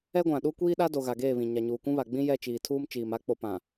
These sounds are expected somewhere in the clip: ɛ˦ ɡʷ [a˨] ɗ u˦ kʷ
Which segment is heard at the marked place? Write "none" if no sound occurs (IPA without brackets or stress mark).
ã˨